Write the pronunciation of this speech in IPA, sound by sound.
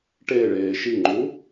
ʈ e ɭ eː ʃ i ŋ͡ǃ u

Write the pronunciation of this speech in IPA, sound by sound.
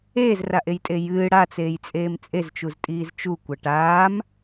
eː z r a ʔ e j tʼ e j ɨː ɽ a t͡s eː j t͡sʼ eː m t͡sʼ e z t͡ʃ u z tʼ iː z t͡ʃ u kʷ ɐ ʈ aː m

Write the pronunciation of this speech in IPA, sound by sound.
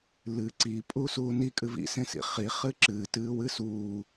l ɨ ǀ i pʼ u s uː n i kʼ ɨ v ḭ s ẽ s ḭ χ i χ ɨ ǁ ɨː t ɨː w ɨ s uː

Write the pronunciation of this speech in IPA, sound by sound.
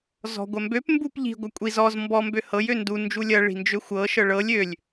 z ɔ̤ ɡʷ ɐ m b ø p m b u p ʎ i̤ ɡʷ ɐ kʷʼ i z ɔ z m b ɔ m b ø h ɤ j ø n d u n d͡ʒ u lʲ ɐ ɭ i̤ n d͡ʒ ø xʷ ɤ ʃ ɤ ɭ ɤ lʲ ø lʲ

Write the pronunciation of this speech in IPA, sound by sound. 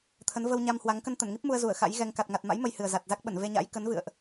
t̪ʰ ə˨˦ n v ə˧ w ɲ a˧ m h w a˨˦ ŋ k ə˧ n t̪ ə˧˩ n ŋ i˦˥ p̚ m u˧ ə̯ z u˧˩ ə̯ x a̰˧˥ j ɣ ɛ˧ ŋ k a˨˩ t̚ ŋ a˨˩ t̚ m a̰˧˥ j m ə˧ j h ɨ˨˩ ə̯ z a˨˩ t̚ z a˦˥ k̚ ɓ ə˧˩ n v e˧ ɲ a̰˧˥ j k ə˨˦ n v ɨ̰˧˨ ə̯ ʔ

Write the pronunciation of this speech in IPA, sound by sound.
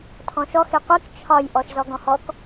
tʰ ɔ̃ ʃ ɔ x e qʷ i k t͡ʃʰ ɒ j ʔ ɔ ʃ z ɔ ɡ ɔ̃ h ɔ k

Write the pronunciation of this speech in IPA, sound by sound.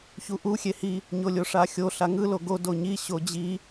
ç u ʔ u xʲ e h i | ɲ o lʲ o ʂ a xʲ o ɬ a ŋ ɯ l o ɡ o d o ɲ i ɕ o d͡ʑ i

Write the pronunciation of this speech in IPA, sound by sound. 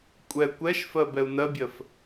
kʷʼ ɛ kʷ ɛ ʃ f ɜ b ɛ u̯ n ɜ bʲ ɜ f

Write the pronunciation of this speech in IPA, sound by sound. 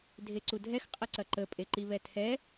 dʱ e ǀ u dʱ ɛ x qʼ ə ǀ ɐ ǃ ə pʼ e ǃ i β ɛ tʰ ɛ

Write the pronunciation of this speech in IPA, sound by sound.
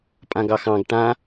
pʼ ã ɡ ɑ x ɑ̃ ɡ ʈ ã

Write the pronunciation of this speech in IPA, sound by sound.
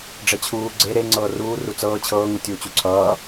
ɖ͡ʐ ɛ t͡ɕʰ uː ɡ͡ǀ e ɾ e ŋ͡ǀ ɤː r uː r u t͡s ɤː t͡ɕʰ ɤː ŋ u tʲ uː t͡ɕ u ǀʰ ʌː

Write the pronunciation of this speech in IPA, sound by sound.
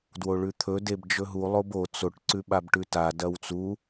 d w o ɭ ʉ t̪ʰ ɵ d e b d͡ʒ ɵ ɦ u lˠ o b o t͡s o ʈ ǀ ʉ ɓ a b ʈ ʉ t a d ɐ w t͡s u

